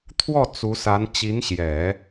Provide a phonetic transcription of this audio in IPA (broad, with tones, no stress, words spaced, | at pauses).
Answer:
t̪ʰwɔ˥˩ t͡su˧˥sa˧˥n t͡ɕi˧˥nɕjɛ˨˩˦